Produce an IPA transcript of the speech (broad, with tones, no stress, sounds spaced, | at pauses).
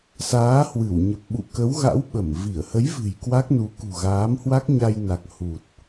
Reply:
s aː˨˦ h w ɨ˧˩ w ɲ ə˨˩ p̚ ɓ ṵ˧˨ k ə˨˦ w ɣ a̰˧˥ w ɓ ə˧˩ m v i˧˩ ə̯ h ə˨˦ j v ɨ̤˨˩ j k w a˦˥ k̚ n u˨˦ k ṳ˨˩ ɣ aː˨˦ m h w a˦˥ k̚ ɲ a˧ j n a˨˩ k̚ h u˨˩ t̚